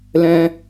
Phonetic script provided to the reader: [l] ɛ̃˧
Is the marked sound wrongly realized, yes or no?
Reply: no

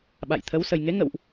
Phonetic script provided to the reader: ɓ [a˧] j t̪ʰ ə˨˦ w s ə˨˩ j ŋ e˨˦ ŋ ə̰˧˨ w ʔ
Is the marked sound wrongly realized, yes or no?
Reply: yes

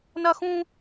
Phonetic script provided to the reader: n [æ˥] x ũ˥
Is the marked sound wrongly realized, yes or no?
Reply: yes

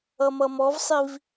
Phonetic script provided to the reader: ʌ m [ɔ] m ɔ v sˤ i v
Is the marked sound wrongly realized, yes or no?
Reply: yes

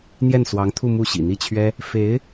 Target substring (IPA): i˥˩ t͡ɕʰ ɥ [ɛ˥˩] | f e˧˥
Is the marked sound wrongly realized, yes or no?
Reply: yes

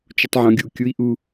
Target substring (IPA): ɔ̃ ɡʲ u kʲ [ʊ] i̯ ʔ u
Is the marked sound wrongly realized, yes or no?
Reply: yes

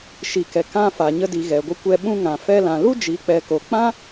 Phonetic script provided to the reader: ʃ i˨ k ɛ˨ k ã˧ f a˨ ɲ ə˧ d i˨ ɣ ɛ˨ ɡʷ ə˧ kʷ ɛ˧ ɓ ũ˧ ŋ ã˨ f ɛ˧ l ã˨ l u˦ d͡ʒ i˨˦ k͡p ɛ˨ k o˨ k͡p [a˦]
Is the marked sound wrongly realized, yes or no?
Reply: yes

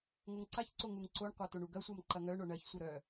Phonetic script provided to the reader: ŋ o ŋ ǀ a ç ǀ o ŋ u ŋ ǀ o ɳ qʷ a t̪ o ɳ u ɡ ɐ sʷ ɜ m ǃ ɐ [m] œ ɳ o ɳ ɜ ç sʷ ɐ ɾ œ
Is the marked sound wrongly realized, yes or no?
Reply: yes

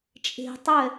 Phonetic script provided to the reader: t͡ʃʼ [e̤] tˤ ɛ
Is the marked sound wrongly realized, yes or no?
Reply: no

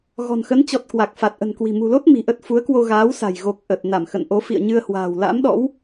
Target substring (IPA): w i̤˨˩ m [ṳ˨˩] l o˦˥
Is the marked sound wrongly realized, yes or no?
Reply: no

